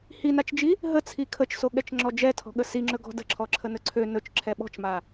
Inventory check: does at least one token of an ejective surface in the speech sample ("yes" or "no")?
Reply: no